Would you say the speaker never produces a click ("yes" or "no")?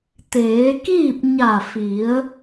yes